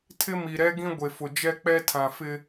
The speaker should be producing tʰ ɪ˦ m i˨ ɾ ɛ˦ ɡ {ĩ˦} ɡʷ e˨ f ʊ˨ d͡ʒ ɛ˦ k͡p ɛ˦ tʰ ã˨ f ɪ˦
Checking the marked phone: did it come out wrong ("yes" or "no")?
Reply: no